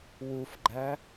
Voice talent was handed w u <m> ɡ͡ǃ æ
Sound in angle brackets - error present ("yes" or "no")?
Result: yes